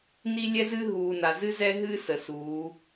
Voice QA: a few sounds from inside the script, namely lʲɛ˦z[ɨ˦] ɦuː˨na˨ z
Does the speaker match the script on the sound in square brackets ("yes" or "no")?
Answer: yes